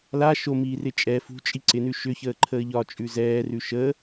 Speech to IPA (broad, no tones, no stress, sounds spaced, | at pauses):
l a ʃ o m iː r ɪ t͡ʃʼ ɛ f ṳ t͡ʃʼ i ǀ ɪ n ʉ ʃ ʏ ç əː ǃʰ əː ʎ ɒ t͡ʃʼ ʉ z ɛː r ʉ ʃ ə